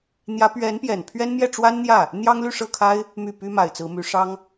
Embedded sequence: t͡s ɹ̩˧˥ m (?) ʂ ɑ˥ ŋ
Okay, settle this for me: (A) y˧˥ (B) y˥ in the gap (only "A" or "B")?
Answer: A